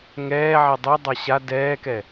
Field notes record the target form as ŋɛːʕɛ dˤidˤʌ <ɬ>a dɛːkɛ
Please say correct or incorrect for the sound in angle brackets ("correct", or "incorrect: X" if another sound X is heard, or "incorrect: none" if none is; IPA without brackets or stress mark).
incorrect: ɕ